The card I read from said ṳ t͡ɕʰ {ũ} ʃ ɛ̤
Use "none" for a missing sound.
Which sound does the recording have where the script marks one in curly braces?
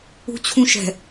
ũ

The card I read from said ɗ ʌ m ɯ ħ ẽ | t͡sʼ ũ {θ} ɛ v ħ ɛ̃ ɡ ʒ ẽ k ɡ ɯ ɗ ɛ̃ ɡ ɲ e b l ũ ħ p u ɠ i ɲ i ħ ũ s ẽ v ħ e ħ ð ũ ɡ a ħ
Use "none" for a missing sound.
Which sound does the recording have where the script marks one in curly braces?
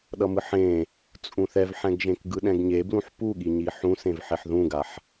θ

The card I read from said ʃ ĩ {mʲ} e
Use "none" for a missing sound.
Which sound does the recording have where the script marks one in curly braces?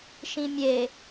mʲ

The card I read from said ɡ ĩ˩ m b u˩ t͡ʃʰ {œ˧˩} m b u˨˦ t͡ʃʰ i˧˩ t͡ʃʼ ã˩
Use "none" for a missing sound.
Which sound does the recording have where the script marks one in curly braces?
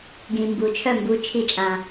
œ˧˩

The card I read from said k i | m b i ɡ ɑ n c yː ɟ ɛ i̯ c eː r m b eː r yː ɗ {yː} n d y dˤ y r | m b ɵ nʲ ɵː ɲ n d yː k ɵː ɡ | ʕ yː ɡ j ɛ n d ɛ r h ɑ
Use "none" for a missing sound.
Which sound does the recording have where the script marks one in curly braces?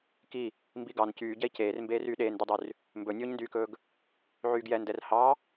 eː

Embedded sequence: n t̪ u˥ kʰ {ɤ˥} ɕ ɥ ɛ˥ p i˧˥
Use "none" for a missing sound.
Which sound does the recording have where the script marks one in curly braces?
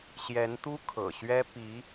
ɤ̰˨˩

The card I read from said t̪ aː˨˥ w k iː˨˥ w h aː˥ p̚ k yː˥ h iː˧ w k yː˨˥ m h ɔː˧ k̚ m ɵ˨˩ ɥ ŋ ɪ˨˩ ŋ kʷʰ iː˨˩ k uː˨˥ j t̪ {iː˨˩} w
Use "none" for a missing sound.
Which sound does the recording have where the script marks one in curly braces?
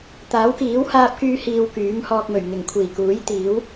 iː˨˥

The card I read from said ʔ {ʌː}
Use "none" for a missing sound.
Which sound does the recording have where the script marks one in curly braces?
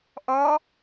ʌː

